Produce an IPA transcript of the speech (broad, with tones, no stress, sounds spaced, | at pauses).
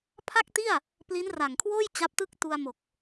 pʰ a˥˩ k̚ t i˥˩ a̯ | p l i˦˥ n r a˨˩ ŋ kʰ w oː˥˩ j t͡ɕ a˦˥ p̚ t ɯ˥˩ k̚ t u˧ a̯ m o˨˩ k̚